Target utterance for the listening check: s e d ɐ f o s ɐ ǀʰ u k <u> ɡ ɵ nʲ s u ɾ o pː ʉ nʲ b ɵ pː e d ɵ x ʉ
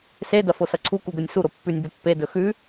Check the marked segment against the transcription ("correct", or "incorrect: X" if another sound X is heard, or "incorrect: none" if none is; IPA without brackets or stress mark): correct